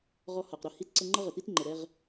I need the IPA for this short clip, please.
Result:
ʁ ɔ˧ h ɒ˩ q ɾ ʊ˧ h i˧ t ǀ ə˧ ŋ͡ǃ ʌ˥ ʁ ə˩ t i˥ t ŋ͡ǃ ə˩ ɾ ɛ˧ ʁ

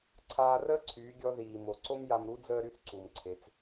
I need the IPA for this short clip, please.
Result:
ǀʰ aː˧ r əː˥ ǀʰ yː˩˧ ɡʲ ɔ˧ ð iː˩ m o˩ ǀ o˥ m j a˧ m ɾ u˧˥ d͡z əː˥ ɾ y˧˥ θ ǀ u˩ m ǀʰ e˩˧ t͡s

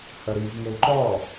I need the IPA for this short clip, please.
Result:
h œ ɾ i v ŋ ɘ y̯ ǃ ɔ

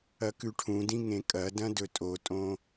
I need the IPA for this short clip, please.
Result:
ɐ k ʉ ʈʰ ũ d ĩ ŋ ẽ kʼ ɐ d ɐ̃ d ɵ tʼ o tʼ õ

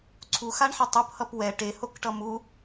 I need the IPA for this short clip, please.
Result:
ǀʰ u x a ɳ ħ ʌ tˤ u p h ʌ p w ɛ ʈ e h o k ʈ ʌ m u

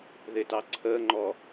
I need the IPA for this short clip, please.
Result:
ð ɪ t ɑ ǀʰ əː ŋ͡ǃ ɔː

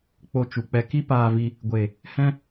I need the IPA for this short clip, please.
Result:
k͡p o˧ t͡ʃ u˨ k͡p ɛ˧ k i˦ p aː˧ v i˧ | ɡʷ eː˨ | h ɛ̃˦

